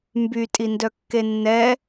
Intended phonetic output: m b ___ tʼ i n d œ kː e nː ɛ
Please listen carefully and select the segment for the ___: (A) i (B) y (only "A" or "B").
B